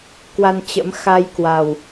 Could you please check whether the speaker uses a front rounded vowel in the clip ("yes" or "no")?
no